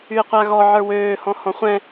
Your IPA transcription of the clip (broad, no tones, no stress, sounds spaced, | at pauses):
y e̯ qʷ a ɣ ɔ ʕ ə˞ w øː h ɔ̃ h ɔ̃ χʷ ɛ̃